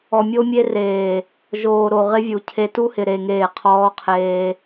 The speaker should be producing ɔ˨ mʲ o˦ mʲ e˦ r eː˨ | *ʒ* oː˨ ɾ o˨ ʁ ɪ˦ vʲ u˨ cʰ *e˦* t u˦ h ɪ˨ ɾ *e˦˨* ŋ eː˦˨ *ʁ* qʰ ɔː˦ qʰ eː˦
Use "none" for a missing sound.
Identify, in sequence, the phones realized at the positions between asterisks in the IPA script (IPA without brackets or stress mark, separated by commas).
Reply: ʒ, e˦, e˨, none